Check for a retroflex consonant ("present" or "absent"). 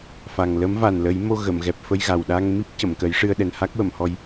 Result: present